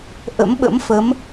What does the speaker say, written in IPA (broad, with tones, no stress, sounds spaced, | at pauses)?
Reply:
ʔ ə̰˧˥ m ɓ ə̰˧˥ m f ə˨˦ m